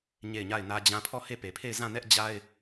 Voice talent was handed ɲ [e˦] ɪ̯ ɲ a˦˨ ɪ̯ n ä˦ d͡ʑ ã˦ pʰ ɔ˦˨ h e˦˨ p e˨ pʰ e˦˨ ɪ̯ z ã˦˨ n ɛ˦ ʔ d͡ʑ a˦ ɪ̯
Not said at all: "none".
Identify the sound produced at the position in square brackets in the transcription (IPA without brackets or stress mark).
e˦˨